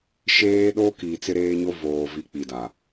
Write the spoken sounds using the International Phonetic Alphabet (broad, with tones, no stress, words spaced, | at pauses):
ʃeː˦ɗo˦ kiː˨t͡sɪ˦ɾeː˦ɲo˦ voː˨vi˨˦ k͡pi˨da˨